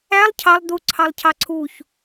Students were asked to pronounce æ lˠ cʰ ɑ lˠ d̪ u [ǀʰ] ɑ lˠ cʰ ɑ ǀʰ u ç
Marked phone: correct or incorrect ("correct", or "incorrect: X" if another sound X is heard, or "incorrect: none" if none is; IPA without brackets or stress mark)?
correct